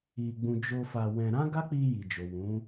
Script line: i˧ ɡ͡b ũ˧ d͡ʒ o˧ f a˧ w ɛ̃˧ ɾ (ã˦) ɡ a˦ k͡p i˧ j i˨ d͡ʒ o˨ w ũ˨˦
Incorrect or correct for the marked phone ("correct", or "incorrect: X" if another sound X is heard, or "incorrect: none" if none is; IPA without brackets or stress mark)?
correct